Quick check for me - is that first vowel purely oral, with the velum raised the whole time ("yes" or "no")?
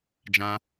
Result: no